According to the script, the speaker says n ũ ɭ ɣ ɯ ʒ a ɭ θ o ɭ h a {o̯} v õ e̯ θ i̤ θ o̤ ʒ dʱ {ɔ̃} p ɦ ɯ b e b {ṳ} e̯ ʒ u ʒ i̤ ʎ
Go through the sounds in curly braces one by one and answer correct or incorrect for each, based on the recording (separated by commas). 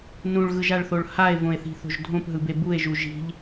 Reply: incorrect, incorrect, incorrect